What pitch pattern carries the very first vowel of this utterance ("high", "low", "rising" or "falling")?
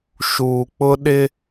low